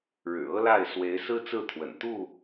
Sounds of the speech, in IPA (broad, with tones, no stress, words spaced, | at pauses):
ɻɻ̩˨˩ɤ˦la˥˨ɪ̯ swe˨˦ɪ̯sɹ̩˦t͡sɹ̩˥˨ t̪ʰwə̰˨˩n t̪u˥˨